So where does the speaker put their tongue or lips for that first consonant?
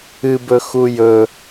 lips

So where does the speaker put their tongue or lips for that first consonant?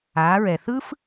tongue tip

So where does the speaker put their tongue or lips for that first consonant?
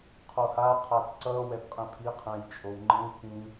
uvula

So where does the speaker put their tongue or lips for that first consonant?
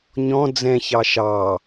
palate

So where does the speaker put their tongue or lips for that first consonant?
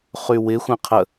uvula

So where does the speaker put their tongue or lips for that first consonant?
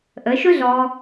throat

